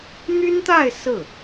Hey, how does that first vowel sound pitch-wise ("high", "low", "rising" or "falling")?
high